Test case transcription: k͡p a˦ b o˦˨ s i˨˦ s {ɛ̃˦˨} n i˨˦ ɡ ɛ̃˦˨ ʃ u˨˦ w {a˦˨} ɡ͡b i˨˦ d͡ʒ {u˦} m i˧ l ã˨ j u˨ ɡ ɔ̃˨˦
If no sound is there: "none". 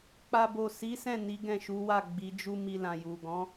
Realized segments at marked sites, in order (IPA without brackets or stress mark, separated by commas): ɛ̃˦˨, a˦˨, u˦